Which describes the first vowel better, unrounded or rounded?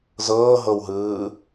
unrounded